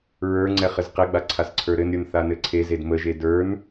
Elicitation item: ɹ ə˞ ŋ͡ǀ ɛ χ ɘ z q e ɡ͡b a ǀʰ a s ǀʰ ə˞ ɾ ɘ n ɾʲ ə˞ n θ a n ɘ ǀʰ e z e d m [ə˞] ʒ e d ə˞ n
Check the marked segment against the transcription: incorrect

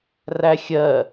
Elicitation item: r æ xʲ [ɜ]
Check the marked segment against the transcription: correct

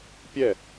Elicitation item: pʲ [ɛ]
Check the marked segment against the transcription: correct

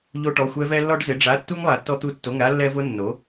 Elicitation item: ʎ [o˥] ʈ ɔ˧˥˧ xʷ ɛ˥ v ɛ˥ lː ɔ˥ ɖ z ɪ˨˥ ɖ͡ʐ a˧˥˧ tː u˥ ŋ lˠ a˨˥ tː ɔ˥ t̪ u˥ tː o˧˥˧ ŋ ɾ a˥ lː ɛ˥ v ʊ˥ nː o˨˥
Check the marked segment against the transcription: correct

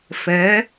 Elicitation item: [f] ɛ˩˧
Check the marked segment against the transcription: correct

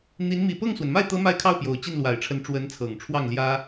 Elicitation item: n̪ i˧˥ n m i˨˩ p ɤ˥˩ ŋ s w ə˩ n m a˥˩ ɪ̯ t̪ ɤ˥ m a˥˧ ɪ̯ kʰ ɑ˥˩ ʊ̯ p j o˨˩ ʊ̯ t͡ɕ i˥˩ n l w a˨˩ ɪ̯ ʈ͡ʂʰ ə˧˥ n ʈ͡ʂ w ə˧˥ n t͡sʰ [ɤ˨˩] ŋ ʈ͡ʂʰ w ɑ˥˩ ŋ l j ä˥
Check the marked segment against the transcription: correct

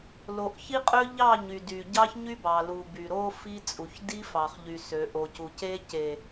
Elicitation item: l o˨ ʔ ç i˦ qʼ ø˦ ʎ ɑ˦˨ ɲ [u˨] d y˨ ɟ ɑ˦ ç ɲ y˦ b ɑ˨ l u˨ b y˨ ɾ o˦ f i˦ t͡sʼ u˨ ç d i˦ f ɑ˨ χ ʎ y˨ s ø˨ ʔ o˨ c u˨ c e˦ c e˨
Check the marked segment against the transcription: incorrect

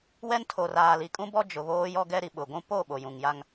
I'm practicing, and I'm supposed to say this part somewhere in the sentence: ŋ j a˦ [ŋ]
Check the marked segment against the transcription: correct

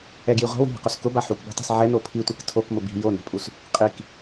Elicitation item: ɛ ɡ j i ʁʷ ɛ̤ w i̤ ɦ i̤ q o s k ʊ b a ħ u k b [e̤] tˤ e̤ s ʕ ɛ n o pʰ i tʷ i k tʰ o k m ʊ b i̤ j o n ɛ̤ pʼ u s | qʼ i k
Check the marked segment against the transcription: correct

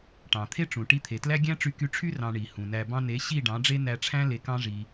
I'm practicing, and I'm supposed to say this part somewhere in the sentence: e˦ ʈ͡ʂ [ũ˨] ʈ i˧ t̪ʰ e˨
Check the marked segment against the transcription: correct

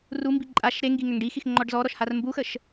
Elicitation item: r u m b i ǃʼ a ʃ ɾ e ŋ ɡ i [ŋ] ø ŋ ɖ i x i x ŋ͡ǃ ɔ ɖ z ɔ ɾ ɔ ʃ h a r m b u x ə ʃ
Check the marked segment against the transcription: correct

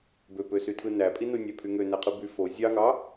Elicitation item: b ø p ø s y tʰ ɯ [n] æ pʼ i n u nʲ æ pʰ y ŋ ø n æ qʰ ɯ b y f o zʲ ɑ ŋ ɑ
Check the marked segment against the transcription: correct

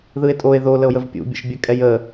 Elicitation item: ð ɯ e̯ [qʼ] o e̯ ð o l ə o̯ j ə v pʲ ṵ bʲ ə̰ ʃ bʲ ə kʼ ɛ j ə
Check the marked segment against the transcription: incorrect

